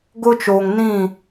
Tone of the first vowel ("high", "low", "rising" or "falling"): high